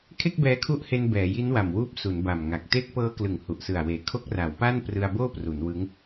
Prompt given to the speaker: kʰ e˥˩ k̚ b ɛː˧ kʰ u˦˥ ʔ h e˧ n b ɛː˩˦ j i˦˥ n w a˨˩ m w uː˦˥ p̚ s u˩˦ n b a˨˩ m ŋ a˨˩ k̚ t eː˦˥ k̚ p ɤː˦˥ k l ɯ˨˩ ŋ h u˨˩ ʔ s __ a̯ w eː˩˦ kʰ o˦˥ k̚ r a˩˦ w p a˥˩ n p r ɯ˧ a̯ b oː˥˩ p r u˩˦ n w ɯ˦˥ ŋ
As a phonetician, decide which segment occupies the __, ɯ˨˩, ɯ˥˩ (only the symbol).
ɯ˨˩